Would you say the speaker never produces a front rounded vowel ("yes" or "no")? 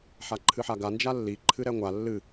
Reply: yes